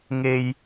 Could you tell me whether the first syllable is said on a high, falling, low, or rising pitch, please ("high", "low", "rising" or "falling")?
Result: low